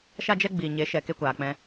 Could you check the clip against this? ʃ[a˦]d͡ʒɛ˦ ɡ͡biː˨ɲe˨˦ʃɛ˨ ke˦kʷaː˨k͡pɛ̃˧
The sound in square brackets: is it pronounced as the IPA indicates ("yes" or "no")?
yes